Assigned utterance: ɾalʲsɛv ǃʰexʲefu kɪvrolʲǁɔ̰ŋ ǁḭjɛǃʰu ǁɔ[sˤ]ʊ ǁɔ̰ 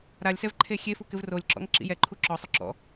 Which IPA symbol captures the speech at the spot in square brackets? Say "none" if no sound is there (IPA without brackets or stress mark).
sˤ